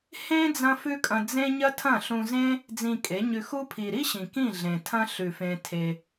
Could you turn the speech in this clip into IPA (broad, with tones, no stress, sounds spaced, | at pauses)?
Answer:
h ẽ˦ d͡z ɐ̃˦ f ʉ˦ kʼ ɐ̃˧ d͡z ẽ˦ ɲ ɐ˦ tʰ ɐ̃˦˨ ɬ ũ˧ z ẽ˦ | d͡z ĩ˧ kʼ e˨˦ ɲ ʉ˧ x u˦ pʰ i˨ ɾ i˦ ɕ ĩ˨ k ĩ˦˨ ɮ ẽ˨ tʰ ɐ̃˦ ɬ ʉ˨ f ẽ˧ tʰ e˧